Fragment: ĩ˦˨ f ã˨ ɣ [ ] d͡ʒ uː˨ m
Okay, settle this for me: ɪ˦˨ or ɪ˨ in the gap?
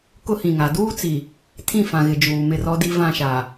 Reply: ɪ˨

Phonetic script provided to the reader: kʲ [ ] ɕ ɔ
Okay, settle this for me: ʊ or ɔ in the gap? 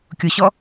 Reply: ʊ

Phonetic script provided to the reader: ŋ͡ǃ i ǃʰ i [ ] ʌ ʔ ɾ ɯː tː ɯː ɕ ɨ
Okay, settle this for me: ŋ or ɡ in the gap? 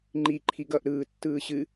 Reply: ɡ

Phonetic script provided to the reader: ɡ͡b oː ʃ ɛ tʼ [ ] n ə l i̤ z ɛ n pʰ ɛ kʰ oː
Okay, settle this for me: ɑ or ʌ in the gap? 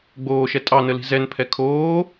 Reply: ɑ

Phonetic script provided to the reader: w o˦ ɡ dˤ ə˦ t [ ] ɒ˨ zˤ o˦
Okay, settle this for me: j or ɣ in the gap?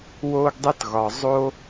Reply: ɣ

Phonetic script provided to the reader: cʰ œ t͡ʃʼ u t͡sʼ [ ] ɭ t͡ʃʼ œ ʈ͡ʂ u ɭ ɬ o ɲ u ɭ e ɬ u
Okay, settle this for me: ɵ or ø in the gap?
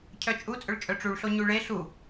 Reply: ɵ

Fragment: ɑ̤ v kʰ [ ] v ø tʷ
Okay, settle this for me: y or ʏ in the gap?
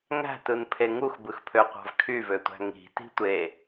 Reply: y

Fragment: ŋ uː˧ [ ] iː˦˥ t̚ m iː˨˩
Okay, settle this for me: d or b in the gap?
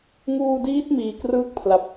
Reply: d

